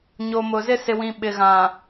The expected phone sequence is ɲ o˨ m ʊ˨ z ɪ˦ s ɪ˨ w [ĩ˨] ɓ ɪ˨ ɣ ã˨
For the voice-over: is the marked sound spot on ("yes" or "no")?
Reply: yes